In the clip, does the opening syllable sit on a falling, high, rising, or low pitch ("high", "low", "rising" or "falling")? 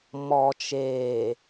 low